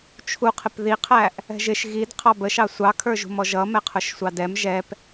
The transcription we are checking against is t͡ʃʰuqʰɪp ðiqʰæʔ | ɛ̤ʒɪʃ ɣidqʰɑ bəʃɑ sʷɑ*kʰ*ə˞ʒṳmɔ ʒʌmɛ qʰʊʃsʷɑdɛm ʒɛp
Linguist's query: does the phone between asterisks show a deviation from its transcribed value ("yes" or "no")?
no